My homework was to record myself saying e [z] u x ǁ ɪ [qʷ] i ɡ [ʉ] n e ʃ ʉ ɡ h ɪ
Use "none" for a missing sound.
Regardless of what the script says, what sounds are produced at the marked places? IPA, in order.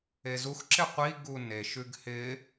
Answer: z, qʷ, u

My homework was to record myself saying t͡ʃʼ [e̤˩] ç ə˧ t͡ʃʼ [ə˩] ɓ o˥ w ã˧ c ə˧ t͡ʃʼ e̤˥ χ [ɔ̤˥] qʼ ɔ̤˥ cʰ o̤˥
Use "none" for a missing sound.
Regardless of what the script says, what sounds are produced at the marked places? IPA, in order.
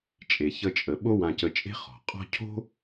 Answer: e˩, ə˩, ɔ̤˩

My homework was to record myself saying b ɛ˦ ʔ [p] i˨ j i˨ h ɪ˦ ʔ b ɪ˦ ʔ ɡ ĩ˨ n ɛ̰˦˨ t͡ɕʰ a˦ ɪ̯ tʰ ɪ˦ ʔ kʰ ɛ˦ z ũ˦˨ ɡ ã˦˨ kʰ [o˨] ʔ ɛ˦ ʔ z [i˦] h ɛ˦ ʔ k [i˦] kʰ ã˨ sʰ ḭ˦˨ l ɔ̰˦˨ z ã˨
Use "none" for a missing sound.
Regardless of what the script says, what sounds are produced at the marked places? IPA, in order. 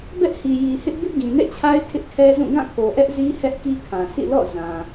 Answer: h, o˨, i˦, i˦

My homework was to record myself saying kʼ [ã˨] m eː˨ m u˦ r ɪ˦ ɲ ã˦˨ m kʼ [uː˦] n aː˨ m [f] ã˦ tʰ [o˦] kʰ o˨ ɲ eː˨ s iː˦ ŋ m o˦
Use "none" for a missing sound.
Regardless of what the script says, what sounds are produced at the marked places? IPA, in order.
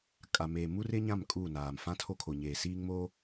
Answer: a˨, uː˦˨, f, o˦

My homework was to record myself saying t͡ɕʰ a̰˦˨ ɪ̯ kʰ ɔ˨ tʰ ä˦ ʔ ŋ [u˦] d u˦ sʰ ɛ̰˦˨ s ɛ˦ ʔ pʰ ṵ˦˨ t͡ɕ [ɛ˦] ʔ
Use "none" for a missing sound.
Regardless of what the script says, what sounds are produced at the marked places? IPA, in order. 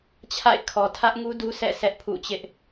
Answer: u˦, ɪ˦

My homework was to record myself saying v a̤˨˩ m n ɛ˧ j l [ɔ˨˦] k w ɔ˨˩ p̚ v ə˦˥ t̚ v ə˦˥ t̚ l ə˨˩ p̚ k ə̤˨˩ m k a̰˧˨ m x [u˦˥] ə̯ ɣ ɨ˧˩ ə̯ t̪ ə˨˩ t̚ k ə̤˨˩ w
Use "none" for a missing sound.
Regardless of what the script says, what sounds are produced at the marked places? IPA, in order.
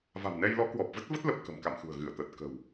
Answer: ɔ˨˦, ṳ˨˩

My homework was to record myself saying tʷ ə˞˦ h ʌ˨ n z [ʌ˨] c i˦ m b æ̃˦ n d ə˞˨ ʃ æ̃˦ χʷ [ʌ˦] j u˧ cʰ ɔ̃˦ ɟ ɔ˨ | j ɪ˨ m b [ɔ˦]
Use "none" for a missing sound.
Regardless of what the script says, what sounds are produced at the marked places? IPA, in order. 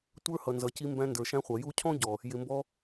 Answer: ʌ˨, ʌ˨, ɔ˦

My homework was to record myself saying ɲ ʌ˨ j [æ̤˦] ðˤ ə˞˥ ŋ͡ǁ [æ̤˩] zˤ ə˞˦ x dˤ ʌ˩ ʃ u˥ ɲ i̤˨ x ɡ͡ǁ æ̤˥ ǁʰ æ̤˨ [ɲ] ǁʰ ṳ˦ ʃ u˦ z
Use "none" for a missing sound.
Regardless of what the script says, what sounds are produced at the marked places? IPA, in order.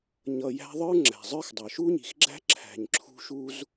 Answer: æ̤˦, æ̤˩, ɲ

